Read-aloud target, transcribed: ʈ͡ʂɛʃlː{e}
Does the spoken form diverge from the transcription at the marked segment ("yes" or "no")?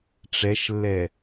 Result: yes